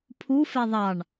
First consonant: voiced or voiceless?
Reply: voiceless